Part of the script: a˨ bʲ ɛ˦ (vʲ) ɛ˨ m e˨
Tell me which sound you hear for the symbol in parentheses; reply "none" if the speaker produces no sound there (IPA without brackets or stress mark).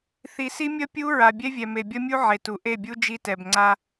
vʲ